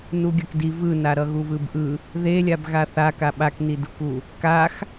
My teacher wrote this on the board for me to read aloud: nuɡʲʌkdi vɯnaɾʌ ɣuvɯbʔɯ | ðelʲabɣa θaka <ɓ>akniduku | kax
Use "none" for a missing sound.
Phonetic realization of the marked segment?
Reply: ɓ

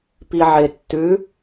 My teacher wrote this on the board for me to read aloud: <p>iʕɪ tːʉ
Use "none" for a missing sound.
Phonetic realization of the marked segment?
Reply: p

